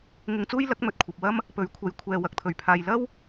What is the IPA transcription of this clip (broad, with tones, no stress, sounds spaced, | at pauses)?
ŋ ɪ˧ ŋ t͡s uː˥ j l ɐ˨˥ k̚ m ɵ˨ t̚ kʷʰ ɐ˨ p̚ w ɐ˥ m | p ɵ˨˥ ɥ kʷʰ ɐ˨˧ j kʷʰ ɛː˨ w ɐ˨ k̚ t̪ʰ ɵ˨˩ ɥ pʰ aː˨ j l ɐ˥ w